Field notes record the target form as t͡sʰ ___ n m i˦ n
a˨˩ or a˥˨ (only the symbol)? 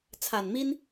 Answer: a˨˩